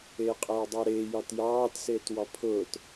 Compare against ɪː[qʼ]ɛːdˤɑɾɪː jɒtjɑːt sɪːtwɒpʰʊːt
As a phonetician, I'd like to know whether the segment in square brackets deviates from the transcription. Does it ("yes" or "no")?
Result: no